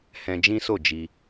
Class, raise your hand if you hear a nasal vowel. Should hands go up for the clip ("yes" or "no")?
yes